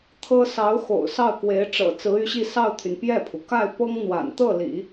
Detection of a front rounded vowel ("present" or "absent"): present